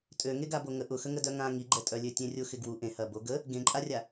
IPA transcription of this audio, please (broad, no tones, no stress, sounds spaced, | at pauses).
tʼ ø ŋ e ɡ a b o ŋ ə ʔ ʊ x ə ŋ ə d œ ŋ ã ŋ i ɡ͡ǃ ɛ tʼ œ lʲ ø tʲ ẽ rʲ ʊ x ɪ ɡ w u ʔ ẽ h ɐ b o ɡ ə | ɡ ẽ ǃʼ a rʲ a